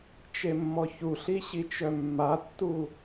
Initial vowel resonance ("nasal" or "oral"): oral